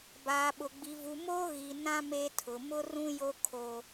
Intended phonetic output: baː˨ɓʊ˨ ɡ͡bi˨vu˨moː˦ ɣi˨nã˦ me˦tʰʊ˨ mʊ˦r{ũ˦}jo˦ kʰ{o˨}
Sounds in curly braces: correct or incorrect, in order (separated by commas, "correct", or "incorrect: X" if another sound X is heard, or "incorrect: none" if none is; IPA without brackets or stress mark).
correct, incorrect: o˦